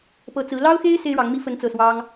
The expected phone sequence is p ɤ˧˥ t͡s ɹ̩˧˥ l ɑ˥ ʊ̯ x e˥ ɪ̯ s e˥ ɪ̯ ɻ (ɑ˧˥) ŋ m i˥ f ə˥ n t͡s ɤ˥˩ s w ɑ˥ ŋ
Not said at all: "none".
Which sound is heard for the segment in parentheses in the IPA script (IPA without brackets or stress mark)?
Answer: ɑ˧˥